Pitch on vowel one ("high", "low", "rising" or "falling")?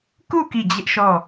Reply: falling